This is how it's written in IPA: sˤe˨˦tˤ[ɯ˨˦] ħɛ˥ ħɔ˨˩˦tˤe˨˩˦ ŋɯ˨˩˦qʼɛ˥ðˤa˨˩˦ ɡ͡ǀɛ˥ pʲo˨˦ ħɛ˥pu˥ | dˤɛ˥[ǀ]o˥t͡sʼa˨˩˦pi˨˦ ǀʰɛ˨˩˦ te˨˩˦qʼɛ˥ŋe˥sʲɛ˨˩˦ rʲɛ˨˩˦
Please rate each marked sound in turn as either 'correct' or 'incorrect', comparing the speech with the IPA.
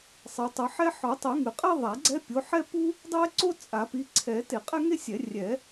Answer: correct, correct

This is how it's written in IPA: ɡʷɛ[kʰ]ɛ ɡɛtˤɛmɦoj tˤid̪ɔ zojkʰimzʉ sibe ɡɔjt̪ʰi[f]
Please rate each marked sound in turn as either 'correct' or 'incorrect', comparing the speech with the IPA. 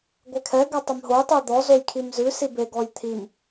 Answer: correct, incorrect

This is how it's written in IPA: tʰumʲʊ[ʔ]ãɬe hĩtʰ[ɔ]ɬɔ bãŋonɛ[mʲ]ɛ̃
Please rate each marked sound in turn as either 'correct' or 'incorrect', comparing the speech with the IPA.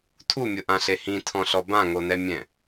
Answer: correct, incorrect, correct

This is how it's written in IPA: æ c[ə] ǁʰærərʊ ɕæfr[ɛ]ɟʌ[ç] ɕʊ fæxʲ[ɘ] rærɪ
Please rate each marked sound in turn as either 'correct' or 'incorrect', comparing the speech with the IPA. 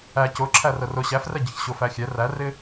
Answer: incorrect, correct, correct, incorrect

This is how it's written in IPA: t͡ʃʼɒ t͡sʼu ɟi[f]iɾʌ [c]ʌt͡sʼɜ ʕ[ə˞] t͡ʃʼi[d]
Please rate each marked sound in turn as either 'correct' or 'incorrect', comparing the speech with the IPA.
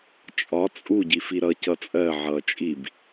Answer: correct, correct, incorrect, incorrect

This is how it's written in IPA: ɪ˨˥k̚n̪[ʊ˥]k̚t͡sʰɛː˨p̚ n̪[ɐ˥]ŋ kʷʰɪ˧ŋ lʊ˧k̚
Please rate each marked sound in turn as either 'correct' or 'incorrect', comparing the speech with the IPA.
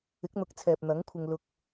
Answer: incorrect, incorrect

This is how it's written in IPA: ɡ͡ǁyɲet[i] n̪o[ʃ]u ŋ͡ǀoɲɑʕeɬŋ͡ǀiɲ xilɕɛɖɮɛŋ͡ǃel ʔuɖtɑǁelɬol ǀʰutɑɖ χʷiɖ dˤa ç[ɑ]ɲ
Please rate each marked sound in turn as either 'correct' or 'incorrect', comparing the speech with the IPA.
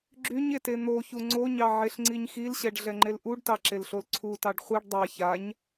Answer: incorrect, incorrect, incorrect

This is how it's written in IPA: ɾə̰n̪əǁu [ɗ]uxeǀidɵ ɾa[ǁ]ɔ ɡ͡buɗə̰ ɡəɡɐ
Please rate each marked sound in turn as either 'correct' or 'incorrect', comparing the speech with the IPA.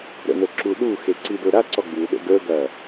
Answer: correct, incorrect

